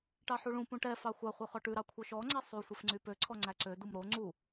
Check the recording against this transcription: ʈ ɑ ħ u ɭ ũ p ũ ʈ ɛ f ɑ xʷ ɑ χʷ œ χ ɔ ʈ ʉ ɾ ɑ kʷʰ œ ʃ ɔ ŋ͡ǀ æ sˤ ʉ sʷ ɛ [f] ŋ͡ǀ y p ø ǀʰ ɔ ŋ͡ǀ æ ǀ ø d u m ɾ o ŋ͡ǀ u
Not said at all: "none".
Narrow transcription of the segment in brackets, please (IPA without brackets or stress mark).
f